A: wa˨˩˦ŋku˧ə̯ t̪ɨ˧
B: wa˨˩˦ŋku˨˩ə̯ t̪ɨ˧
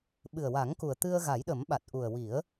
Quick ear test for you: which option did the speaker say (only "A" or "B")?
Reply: B